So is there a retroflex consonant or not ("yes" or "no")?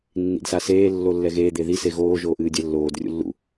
no